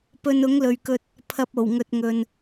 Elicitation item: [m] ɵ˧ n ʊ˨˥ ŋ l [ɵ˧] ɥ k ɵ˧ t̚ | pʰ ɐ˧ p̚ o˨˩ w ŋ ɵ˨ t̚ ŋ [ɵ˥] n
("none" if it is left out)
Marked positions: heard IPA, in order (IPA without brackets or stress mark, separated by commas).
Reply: p, ɵ˨, ɵ˨